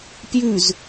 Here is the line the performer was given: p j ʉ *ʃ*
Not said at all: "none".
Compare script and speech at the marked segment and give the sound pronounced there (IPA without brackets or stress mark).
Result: z